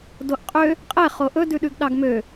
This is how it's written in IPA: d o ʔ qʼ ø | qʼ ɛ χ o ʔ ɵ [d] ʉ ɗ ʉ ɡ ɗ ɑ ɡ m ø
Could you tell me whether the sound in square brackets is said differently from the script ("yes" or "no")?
no